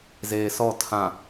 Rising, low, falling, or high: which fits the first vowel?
low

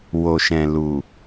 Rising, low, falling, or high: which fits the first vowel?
low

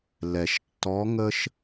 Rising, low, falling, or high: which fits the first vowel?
low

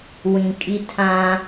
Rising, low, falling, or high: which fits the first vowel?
low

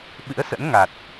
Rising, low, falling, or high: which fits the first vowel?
rising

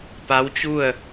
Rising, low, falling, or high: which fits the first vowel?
rising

